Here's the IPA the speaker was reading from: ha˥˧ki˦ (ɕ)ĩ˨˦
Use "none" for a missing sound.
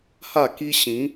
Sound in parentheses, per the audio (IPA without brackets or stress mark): ɕ